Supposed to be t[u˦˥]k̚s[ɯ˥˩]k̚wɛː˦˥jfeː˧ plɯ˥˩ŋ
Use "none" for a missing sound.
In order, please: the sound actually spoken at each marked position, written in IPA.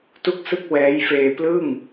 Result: u˥˩, ɯ˥˩

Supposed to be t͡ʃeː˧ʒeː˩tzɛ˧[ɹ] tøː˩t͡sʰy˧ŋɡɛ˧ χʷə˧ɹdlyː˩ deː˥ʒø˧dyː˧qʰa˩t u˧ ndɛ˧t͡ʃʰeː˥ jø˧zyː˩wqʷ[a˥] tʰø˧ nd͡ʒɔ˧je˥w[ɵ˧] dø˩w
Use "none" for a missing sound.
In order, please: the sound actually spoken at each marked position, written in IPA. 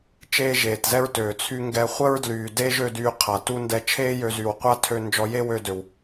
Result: ɹ, a˥, ø˧

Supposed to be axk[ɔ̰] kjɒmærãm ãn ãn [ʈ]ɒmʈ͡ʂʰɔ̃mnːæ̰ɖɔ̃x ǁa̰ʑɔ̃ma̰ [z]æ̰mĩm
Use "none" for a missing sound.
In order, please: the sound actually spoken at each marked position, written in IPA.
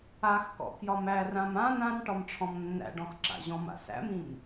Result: ɔ̰, ʈ, s

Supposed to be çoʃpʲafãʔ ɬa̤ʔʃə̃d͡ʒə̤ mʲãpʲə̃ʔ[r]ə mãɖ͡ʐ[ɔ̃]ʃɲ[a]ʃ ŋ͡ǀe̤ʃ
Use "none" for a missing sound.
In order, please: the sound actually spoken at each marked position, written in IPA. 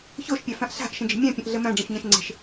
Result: ɮ, ə̃, ã

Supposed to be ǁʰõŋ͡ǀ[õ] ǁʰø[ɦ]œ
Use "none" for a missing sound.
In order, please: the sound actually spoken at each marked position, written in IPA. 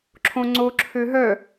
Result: o, ɦ

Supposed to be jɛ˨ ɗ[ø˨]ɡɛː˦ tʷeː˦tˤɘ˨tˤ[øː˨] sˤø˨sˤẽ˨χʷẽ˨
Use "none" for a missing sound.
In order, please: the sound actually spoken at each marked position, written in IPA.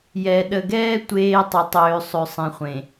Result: ə˨, øː˨

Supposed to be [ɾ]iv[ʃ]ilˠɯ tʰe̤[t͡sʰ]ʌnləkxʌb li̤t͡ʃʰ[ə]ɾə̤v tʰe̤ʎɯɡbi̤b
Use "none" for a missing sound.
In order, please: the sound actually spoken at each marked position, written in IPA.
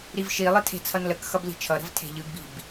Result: ɾ, ʃ, t͡sʰ, ʌ

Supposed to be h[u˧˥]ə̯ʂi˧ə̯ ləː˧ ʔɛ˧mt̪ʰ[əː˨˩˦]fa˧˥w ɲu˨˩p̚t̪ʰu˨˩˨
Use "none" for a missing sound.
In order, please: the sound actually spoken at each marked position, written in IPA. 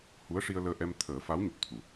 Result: u˧˥, əː˨˩˦

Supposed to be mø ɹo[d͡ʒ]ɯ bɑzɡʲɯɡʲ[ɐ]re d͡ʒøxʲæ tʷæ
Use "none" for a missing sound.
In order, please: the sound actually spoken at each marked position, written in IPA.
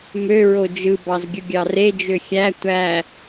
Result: d͡ʒ, ɑ

